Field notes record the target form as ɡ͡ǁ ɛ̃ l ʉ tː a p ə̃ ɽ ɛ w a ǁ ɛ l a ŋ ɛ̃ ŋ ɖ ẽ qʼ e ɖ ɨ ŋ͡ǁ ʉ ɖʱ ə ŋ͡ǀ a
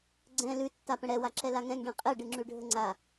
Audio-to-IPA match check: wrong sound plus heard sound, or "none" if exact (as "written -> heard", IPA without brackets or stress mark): ɡ͡ǁ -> ɡ͡ǀ